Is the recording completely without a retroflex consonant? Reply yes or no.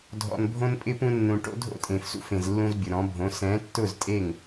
no